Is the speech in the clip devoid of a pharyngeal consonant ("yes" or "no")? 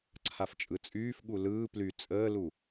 yes